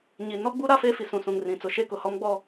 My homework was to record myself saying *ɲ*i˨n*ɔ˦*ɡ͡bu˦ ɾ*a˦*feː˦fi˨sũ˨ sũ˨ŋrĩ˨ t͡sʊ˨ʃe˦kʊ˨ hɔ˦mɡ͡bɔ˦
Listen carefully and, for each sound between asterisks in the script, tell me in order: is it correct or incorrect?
correct, correct, correct

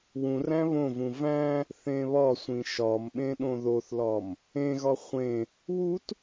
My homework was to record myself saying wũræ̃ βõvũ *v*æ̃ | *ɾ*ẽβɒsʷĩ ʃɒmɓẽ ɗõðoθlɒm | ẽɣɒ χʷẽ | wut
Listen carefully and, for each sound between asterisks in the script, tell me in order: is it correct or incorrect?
correct, incorrect: θ

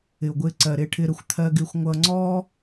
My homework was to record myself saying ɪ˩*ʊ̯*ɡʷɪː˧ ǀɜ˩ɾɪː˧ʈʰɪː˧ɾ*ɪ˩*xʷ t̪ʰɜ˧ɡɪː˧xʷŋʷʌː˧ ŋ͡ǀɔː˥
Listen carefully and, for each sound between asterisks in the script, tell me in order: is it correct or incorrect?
correct, incorrect: ə˩

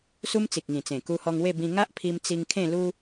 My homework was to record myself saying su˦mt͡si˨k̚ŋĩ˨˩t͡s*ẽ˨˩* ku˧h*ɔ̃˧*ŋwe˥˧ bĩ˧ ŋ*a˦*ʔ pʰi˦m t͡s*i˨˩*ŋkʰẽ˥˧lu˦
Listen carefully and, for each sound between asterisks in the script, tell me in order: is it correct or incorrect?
correct, incorrect: ɔ˧, correct, incorrect: i˧

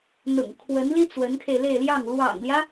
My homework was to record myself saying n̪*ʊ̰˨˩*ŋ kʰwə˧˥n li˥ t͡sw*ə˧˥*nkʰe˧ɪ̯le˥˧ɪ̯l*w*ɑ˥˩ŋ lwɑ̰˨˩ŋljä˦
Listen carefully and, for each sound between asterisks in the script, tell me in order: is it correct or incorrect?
correct, correct, incorrect: j

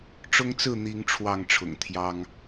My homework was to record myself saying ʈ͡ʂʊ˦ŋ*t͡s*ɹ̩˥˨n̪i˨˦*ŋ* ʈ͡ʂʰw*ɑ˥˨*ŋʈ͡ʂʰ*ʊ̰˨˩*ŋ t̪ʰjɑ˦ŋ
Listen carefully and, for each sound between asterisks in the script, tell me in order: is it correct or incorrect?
correct, correct, correct, correct

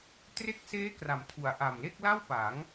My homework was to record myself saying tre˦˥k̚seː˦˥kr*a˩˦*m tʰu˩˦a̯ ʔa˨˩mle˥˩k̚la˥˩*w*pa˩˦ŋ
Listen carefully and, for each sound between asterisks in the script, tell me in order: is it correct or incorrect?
correct, correct

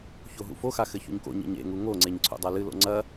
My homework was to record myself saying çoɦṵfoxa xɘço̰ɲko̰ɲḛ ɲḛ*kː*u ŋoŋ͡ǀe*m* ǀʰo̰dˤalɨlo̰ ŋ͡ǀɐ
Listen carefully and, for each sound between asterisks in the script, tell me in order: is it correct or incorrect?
incorrect: ŋ, incorrect: ɲ

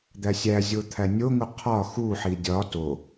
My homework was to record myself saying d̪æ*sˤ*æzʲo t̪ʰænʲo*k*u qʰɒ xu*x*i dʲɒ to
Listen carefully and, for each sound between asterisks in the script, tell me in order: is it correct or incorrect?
incorrect: sʲ, incorrect: ŋ, incorrect: ħ

